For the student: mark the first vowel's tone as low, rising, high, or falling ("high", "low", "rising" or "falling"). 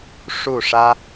falling